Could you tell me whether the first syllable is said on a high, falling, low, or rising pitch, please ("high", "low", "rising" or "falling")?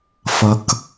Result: low